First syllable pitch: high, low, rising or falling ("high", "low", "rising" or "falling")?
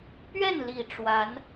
falling